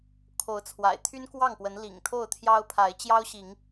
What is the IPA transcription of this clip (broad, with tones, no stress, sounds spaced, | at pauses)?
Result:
kʰ o˨˦ ʊ̯ t͡sʰ w a̰˨˩ ɪ̯ t̪ʰ y˦ n k w ɑ˥˨ ŋ p w ə˨˦ n l ḭ˨˩ ŋ t̪ʰ o˥˨ ʊ̯ t̪ʰ j ɑ˦ ʊ̯ pʰ a˨˦ ɪ̯ t͡ɕ j ɑ˦ ʊ̯ ɕ i˨˦ ŋ